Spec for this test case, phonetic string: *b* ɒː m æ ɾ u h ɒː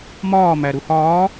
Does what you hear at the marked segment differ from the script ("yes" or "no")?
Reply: yes